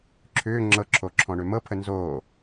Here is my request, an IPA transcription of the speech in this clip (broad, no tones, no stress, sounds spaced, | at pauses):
ǁʰ ʏː ŋ͡ǁ ɤ ǁʰ o ǁʰ ɔ̃ ɳ ø m ɤ pʰ ə n z oː